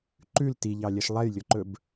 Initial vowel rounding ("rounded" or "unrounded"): rounded